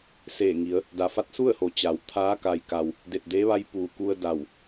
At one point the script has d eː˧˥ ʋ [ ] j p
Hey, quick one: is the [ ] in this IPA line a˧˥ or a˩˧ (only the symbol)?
a˧˥